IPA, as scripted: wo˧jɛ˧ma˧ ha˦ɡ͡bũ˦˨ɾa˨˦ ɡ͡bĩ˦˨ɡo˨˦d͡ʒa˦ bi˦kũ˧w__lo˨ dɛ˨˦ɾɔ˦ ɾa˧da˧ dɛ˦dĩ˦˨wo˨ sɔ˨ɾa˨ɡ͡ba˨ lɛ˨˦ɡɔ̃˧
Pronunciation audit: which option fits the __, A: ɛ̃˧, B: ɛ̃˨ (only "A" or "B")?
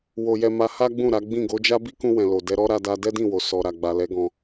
B